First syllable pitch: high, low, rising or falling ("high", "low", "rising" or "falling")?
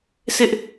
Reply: high